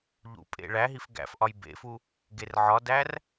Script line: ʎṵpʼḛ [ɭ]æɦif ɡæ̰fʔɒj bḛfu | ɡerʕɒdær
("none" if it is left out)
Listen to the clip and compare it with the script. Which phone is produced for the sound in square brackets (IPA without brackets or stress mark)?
ɭ